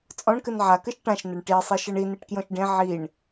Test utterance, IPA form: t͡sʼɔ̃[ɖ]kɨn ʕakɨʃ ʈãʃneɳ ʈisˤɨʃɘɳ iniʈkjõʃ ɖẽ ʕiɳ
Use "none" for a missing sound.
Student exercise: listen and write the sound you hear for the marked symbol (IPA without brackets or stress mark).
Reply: ɳ